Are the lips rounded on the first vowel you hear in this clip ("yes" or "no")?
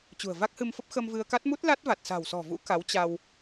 yes